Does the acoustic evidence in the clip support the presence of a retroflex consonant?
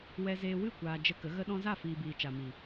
no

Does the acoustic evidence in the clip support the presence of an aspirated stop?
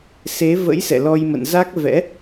no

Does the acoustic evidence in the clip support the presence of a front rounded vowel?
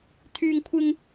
yes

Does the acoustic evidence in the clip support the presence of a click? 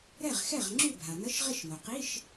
yes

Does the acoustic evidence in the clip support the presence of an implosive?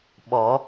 yes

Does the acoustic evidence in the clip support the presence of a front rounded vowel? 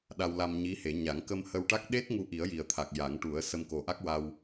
no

